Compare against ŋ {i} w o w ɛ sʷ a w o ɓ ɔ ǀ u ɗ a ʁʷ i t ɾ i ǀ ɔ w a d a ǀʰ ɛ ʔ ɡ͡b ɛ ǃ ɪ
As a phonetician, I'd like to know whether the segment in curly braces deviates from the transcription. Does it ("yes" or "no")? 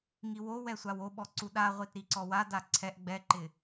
no